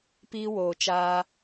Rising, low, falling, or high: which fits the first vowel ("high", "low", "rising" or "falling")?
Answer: high